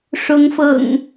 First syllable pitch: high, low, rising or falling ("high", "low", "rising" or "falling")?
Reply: rising